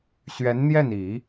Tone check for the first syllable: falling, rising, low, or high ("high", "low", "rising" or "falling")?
rising